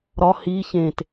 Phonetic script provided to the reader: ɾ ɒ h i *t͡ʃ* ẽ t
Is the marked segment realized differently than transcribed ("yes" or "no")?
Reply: yes